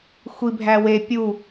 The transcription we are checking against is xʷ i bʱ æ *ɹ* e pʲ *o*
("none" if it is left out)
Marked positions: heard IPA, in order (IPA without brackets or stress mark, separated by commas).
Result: w, u